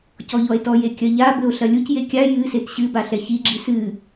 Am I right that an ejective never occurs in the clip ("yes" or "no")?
yes